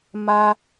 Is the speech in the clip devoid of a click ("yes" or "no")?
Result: yes